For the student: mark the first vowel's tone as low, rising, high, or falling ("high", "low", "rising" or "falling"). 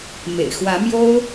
low